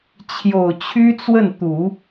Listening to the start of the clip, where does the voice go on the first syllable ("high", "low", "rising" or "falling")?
low